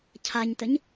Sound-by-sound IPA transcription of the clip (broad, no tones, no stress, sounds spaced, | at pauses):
cʰ a ɲ t ə ɲ